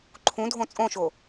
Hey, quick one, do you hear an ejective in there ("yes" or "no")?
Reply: yes